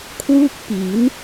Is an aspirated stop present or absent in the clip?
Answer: present